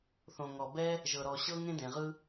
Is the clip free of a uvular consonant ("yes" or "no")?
no